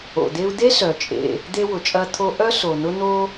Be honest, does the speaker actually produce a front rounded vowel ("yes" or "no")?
yes